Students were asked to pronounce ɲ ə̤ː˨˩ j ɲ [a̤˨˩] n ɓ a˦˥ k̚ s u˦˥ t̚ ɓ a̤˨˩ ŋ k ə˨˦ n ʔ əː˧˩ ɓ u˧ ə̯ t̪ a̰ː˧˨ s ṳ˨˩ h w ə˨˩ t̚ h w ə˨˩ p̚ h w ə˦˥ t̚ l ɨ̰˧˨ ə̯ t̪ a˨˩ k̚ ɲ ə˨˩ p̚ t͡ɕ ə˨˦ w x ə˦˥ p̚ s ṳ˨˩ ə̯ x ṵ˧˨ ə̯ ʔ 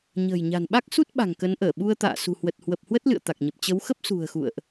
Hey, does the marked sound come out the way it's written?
yes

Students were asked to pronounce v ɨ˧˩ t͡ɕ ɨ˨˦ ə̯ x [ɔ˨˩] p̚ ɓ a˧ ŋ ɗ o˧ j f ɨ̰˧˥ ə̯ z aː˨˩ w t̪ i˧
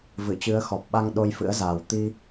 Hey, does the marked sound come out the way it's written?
yes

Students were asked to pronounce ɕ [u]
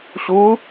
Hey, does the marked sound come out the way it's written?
yes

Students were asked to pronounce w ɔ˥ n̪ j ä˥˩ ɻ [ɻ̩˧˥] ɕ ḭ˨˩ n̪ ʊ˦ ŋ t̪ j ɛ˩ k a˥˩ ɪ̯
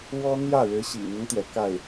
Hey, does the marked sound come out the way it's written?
yes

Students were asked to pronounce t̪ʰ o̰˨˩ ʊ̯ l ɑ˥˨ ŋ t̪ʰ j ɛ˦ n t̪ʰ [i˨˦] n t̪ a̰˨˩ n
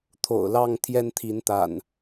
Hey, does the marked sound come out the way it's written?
yes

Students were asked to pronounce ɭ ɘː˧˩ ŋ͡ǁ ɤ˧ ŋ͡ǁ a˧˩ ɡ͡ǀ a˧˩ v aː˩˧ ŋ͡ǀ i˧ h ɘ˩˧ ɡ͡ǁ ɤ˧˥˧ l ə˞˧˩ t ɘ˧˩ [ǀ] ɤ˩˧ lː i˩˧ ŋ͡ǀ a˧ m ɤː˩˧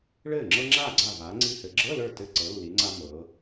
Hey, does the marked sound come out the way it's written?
yes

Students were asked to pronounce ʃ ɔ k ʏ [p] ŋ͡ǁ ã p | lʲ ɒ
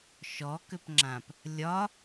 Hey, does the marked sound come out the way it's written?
yes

